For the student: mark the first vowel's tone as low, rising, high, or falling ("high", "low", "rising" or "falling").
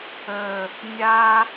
low